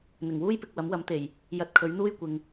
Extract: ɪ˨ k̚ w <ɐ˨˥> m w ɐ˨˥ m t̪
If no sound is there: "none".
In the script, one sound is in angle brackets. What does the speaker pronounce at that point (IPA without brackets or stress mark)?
ɐ˨˥